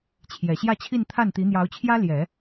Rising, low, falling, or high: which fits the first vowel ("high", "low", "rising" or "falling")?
low